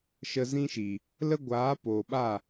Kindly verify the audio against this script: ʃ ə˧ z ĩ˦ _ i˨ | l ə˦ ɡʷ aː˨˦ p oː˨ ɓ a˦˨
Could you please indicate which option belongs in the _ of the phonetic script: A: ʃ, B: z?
A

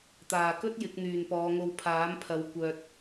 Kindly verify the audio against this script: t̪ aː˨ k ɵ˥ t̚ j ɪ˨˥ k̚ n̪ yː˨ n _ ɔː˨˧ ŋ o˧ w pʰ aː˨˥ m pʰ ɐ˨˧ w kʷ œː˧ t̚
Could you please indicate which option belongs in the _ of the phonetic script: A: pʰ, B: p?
B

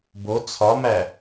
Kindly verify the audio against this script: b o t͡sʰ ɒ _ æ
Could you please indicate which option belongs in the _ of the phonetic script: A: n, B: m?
B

